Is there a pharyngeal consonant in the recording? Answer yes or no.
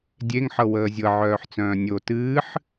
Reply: yes